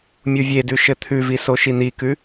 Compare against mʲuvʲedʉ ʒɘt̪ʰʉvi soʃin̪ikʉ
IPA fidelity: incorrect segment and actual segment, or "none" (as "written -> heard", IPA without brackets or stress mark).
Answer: ʒ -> ʃ